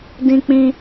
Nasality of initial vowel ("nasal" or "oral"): nasal